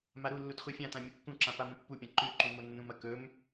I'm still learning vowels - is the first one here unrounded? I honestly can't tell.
yes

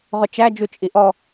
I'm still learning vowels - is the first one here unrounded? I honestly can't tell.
no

